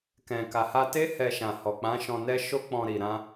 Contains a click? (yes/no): no